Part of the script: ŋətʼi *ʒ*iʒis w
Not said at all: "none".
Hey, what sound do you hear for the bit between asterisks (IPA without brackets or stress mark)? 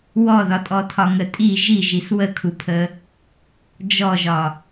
ʒ